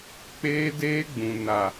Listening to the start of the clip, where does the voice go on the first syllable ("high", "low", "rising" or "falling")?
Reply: high